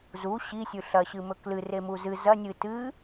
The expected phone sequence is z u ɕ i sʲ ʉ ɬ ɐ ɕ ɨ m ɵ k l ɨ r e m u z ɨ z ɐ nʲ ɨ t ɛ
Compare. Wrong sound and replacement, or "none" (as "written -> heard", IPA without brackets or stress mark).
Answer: ɛ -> ɨ